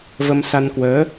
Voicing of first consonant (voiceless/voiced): voiced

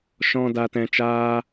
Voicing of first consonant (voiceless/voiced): voiceless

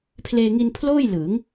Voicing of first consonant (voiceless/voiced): voiceless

